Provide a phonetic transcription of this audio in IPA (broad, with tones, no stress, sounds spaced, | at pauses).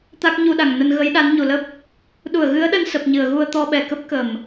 t̪ a˦˥ k̚ ɲ u˧ ɗ a˧˩ ŋ n ə˧ n ɣ ə˨˦ j ɗ a˨˦ n ɲ u˨˩ l ə˦˥ p̚ | ɗ u˧˩ ə̯ ɣ ɨ˨˦ ə̯ ɗ ə˧ n s ə˨˩ p̚ ɲ ɨ˧˩ ə̯ ɣ u˧ ə̯ t̪ ɔ˧ ɓ ɛ˧˩ k ə˦˥ p̚ k ə˧˩˨ m